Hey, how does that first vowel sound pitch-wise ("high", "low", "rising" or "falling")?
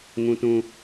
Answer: high